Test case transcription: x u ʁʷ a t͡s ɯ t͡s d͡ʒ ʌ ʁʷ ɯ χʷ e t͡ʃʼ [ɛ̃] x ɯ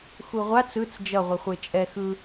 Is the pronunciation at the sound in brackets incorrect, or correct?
incorrect